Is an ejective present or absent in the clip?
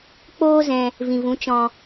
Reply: absent